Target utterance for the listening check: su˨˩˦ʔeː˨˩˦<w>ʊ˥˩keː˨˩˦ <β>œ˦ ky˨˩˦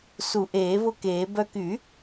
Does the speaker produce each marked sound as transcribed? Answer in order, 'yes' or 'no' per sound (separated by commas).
no, no